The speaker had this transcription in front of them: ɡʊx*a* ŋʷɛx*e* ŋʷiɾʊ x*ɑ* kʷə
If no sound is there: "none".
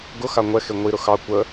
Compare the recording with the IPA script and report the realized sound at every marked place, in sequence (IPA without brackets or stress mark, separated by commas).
a, e, ɑ